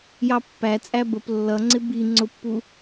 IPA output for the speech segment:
j ɑ pː æ t͡sʼ æ b ə p lː ʌ ŋ͡ǀ ɪ b i ŋ͡ǀ ʊ pː u

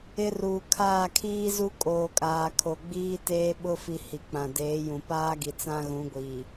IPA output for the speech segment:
ɪ˦ r uː˨ kʰ aː˦˨ kʰ iː˦ z u˦ kʼ oː˨ kʼ aː˨ kʰ o˨ ɡ͡b iː˦ t eː˦ ɓ ʊ˦ f i˨ h i˨ k͡p ã˨ d eː˨˦ j ũ˨ p aː˦ ɡ i˨ t͡s ã˦ ɣ ũ˨˦ ɡʷ iː˨

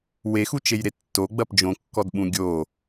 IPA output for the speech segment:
w e x u t͡ʃ e j ɾ e tː o ɡ͡b ɐ p d͡ʒ õ kː ɔ d ɓ ũ ɡʲ o

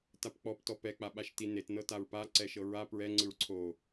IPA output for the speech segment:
t a p k͡p ɔ p t ɔ p ɛ k͡p a ɓ a ʃ t i n e t n ɤ t a ɹ p a ǀ ɛ ʃ ɤ ɹ a p ɹ ɛ ŋ͡ǀ ɯ ɹ ǀʰ o

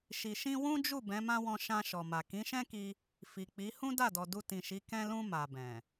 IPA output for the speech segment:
ʃ i˨ ʃ ĩ˧ w ũ˦ d͡ʒ u˦˨ b ɛ̃˨˦ m ã˦ w ɔ̃˧ ʃ ã˧ ʃ ɔ˨ m a˨ k ĩ˨˦ ʃ ɛ̃˦ k i˧ | f i˨ k͡p i˨˦ h ũ˦ d a˦˨ d ɔ˨ d u˧ t ĩ˨ ʃ i˨˦ k ɛ̃˧ l ũ˧ m a˨ b ɛ̃˨

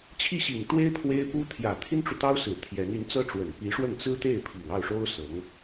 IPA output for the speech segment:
t͡ɕʰ i˥˩ ɕ i˨˩ ŋ t̪ w e˥ ɪ̯ t̪ʰ w e˥ ɪ̯ p u˥ t̪ʰ j ä˨˩ t̪ʰ i˥ n ʈ͡ʂ u˨ t̪ ɑ˥ ʊ̯ s ɹ̩˨˩ t̪ʰ j ɛ˧˥ n y˧˥ n t͡s ɤ˥ ʈ͡ʂ w ə˨˩ n p i˧˥ ʂ w ə˥˩ n t͡s ɹ̩˥ t̪ e˥˩ ɪ̯ pʰ i˨˩ ŋ ɑ˥˩ ʊ̯ ʂ o˥ ʊ̯ s ɤ˧˥ ŋ

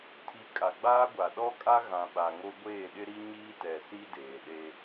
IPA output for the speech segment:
tʰ i˨˦ kʼ a˨ ɡ͡b aː˦ ɡʷ a˨ ɗ ɔ˦ kʼ a˦ ɣ ã˨ ɓ a˨ ŋ o˦ ɡʷ eː˦˨ ɗ ɪ˦ ɾ i˦ ɲ iː˦ t ɛ˨ s i˦ d eː˨ ɗ e˦

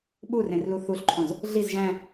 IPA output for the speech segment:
ɓ u r ẽ r l u θ u ɬ ǃʰ õ z | ɮ i z ʒ æ̃

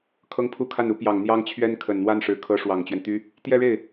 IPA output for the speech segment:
kʰ ɤ˥ ŋ pʰ u˥ kʰ a˥˩ n u˧˥ p j ɑ˨˩ ŋ n̪ j ɑ˥ ŋ t͡ɕʰ ɥ ɛ˥ n kʰ ə˨˩ n n̪ w a˥˩ n ʂ ɻ̩˨˩ kʰ ɤ˧˥ ʂ w ɑ˨˩ ŋ t͡ɕ ɥ ɛ˦ n t̪ y˥ | t̪ j ɛ˥˧ ɻ e˥˩ ɪ̯

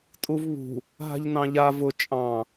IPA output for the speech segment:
tʼ u v β ṳ | ɦ a̤ ʎ n ɑ̃ ʎ a v ʊ t͡ʃʼ ɑ̃

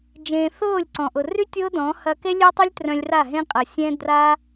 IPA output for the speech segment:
d͡ʒ ẽː˧ θ ʊː˦˨ lʲ ǀ ɔ̃˨ ʔ ʊ˨ r y˦ tʲ ʊː˦ d ɔ̃˨˦ h ɐ˧ k e˦ lʲ ø˦ tˤ u˦ lʲ t r œ̃˧ lʲ r a˦˨ ɦ ẽ˦ qʼ ɐ˨ sʲ ɛ̃˦ d r a˦

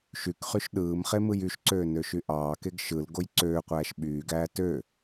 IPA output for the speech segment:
ʃ y k χ y ʃ ɗ ɯː m χ e m ɯ j y ʃ ǀ øː n ø ʃ y ʔ ɑː k e ɡ ʃ ɯ l ɡ o j ǀ øː qʷ æː ʃ ɓ yː ɡ æː t ø

